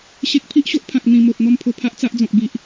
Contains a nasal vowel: yes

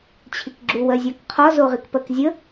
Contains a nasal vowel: no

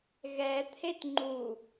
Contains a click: yes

